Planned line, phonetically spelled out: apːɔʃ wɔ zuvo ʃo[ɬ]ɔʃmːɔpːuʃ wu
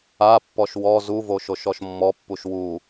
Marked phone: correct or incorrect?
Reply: incorrect